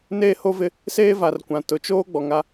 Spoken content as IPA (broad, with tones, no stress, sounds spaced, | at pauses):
n eː˦ h o˦ v ɪ˦ | s eː˦ v a˨ r kʷ ã˨ t ʊ˨ t͡ʃ oː˦ ɡ͡b ɔ˨ ŋ a˦